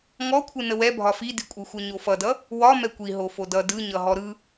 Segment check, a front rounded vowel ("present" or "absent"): absent